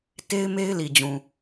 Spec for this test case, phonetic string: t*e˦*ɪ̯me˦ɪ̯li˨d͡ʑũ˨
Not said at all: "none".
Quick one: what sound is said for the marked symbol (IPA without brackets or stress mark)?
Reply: e˦